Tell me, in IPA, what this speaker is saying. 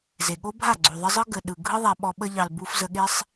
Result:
z e˨ ɠ o˦ bʱ a˦˨ ɡ͡ǀ u˨ ðˤ ə˦ zˤ ɯ˦ ɡ ə˨ ɗ ɯ˨ ɡʱ ɯ˦ ðˤ a˧ ɓ ɔ˧ ɓ ə˧ ʎ ɑ˨ l b u˧ f z ə˧ ɠ e˦ sˤ

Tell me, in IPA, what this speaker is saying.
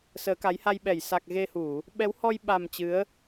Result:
s əː˨˦ k a˨˦ j h a˧ j ɓ ɛ˧˩ j s a˨˩ k̚ ɣ e˧ h u˧˩˨ | ɓ ɛ˨˦ w h ɔ˧ j ɓ a˨˩ m t͡ɕ ɨ˨˦ ə̯

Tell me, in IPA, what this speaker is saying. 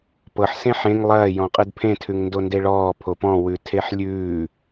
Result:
p ɤ ħ s ẽ ħ ẽ ŋ lˠ ɐː j ɔ̃ qʼ ɯ d pʰ ẽ tʰ ʉ ŋ n d o n d e ɭ ɔː pʰ o p ɔ̃ w ʉ tʰ e ħ lʲ ʉː

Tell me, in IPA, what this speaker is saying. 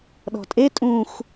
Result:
ɗ ɔ̤ tʼ e tʼ ũ x

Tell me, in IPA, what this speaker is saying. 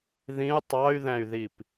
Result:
ð ĩ u̯ tˤ ɑ y̯ ð æ̃ y̯ ð i p

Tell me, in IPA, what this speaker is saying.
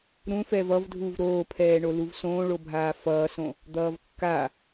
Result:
ɾ ũ f ɛ v ʌ v dʱ u v ɾ oː pʰ ɛː ɳ o l u v s õː ɭ o bʱ aː f ʌː s õ | d̪ ʌː v kː a

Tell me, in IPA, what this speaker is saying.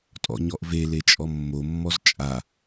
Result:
tʼ ɔ̰ ɲ ɔ ʔ v e l e t͡ʃʼ ɔ mː o mː ɔ z t͡ʃʼ a

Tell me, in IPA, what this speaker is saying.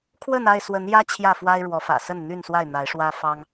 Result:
kʰ w ə˥˨ n a˥˨ ɪ̯ s w ə˨˦ n j ä˦ t͡ɕʰ j ä˥˨ f w a˦ ɪ̯ ɻ w ɔ˨˦ f ä̰˨˩ s ə˥˨ n n̪ y˥˨ n s w a˥˨ ɪ̯ n̪ a˨˦ ɪ̯ ʂ w ä˦ f ɑ˦ ŋ

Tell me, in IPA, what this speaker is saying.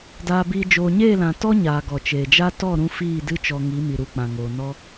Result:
d aː˧ b iː˧ d͡ʒ oː˨ ɲ eː˦˨ l ã˨ t ɔ˦ ɲ aː˨ ɡ ɔ˨ t͡ʃ eː˨ d͡ʒ a˦ t ɔ˦˨ ɾ ũ˧ f iː˦˨ d ɨ˦ t͡ʃ ɔ˧ ŋ i˨˦ m i˨ ɾ u˨ k͡p ã˨ ŋ oː˨ n ɔ˦

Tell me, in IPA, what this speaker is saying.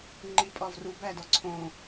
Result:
ŋ͡ǃ i pʼ ɒ v r u b æ d ɒ ǀʰ õ

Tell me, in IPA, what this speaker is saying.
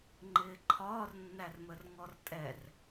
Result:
ŋ͡ǃ ɪː ǃʰ ɒː r nː æ r m ə r ŋ ɔ r tʼ ɛ r

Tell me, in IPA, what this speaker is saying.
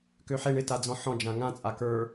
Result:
k ø ħ e ɳ ɪ t a d͡z ɔ̃ ħ ɔ̃ d͡ʒ ã ŋ ã t͡sʼ a k ə˞

